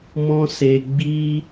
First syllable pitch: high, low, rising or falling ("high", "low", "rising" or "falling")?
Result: high